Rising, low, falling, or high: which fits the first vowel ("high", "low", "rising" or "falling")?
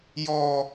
high